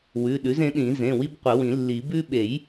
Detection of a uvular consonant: present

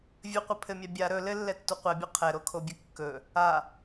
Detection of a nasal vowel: absent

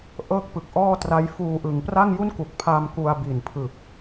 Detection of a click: absent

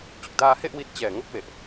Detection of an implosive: absent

